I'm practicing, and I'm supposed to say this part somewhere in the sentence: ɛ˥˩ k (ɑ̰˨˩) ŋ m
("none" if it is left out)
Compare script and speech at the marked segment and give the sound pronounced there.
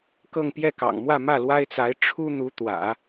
ɑ̰˨˩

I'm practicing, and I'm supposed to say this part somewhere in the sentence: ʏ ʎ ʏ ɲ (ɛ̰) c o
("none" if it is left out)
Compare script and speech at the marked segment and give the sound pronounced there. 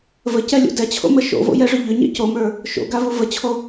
ɛ̰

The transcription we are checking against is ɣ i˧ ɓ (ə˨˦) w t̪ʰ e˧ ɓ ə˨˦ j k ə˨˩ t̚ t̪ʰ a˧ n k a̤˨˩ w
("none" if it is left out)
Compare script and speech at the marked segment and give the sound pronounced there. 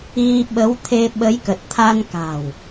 ə˨˦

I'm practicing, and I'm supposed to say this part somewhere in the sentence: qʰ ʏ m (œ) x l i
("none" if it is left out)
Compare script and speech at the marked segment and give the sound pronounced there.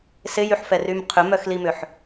œ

